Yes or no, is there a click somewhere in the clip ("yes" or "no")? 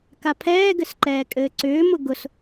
yes